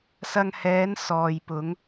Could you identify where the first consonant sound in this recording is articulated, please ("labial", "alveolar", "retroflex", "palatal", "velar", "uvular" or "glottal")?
alveolar